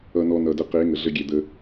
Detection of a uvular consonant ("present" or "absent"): present